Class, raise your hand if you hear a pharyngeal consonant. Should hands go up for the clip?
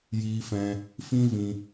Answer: no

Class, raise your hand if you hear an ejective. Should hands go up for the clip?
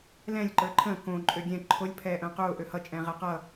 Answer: yes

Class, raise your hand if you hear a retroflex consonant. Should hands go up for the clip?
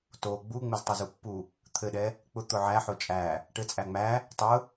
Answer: yes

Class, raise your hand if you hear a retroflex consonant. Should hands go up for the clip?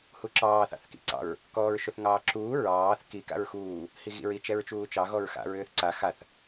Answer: no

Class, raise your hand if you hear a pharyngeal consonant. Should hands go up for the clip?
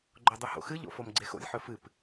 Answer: yes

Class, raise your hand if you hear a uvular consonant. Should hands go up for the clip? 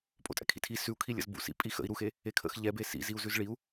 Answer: no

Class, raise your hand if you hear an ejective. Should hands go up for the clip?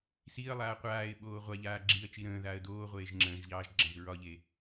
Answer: no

